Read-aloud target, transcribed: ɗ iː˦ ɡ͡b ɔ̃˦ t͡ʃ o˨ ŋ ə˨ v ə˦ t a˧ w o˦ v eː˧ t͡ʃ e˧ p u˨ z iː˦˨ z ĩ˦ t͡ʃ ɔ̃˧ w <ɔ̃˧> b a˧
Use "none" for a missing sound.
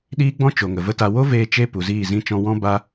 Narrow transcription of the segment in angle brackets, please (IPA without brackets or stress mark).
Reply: ɔ̃˦